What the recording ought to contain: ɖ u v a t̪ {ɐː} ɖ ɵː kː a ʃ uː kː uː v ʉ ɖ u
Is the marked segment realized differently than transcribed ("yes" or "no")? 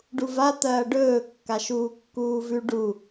no